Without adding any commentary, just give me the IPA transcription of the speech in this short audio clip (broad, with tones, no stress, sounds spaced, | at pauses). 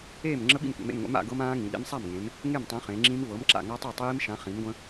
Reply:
eː˥˩ m ŋ͡ǁ ə˦˥ ɓ ḭ˥˩ m kʷ ḛ˩˧ m ḛ˥˩ m ŋʷ ḛ˨˥ m a̰˩˧ ɡ ɤ˦˥ m ãː˦˥ ŋ ĩ˩˧ ɗ ḛ˦˥ m sˤ a˥˩ m ŋ ẽ˩˧ m | ŋ e˥˩ m tˤ ẽ˨˥ χ ẽ˩˧ ŋ͡ǁ ĩ˦˥ m v ɤ˨˥ m ǁ a̰˥˩ ŋ a˦˥ tˤ ɤ˥˩ tˤ iː˦˥ m ʃ ã˨˥ χ ĩ˨˥ m ɡʷ ə̃˦˥